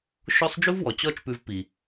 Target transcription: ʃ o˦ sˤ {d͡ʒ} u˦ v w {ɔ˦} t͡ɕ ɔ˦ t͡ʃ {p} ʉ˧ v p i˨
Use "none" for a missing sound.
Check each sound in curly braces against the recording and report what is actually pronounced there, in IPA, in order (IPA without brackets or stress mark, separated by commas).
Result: d͡ʒ, ɔ˨, p